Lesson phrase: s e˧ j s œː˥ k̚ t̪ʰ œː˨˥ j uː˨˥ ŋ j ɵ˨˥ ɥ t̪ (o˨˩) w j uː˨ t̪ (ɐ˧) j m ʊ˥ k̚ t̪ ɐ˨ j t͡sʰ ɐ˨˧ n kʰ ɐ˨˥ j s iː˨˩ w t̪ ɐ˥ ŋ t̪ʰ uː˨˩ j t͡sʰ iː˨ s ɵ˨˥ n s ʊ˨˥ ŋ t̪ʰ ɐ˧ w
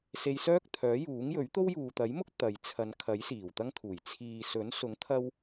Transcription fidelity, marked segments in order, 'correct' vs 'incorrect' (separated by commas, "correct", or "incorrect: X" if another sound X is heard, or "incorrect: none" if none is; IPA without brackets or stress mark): incorrect: o˥, incorrect: ɐ˨˥